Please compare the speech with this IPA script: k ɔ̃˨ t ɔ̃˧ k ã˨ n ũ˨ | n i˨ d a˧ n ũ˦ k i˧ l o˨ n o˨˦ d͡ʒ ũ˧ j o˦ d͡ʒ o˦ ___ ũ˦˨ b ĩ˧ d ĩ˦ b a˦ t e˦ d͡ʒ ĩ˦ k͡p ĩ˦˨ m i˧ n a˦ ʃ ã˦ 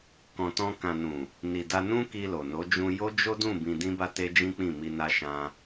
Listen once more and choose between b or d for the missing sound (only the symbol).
d